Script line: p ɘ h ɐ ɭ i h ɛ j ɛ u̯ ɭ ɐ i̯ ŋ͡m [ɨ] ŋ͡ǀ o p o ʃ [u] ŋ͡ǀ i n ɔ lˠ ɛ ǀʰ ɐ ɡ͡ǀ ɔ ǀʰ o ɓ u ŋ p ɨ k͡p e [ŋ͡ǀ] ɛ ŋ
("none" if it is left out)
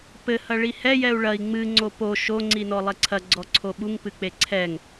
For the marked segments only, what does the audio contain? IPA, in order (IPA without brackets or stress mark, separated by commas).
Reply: ɨ, o, ǀʰ